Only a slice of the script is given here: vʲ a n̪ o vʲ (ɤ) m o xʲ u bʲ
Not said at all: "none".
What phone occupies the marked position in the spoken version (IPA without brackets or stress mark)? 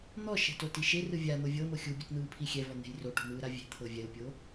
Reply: ɤ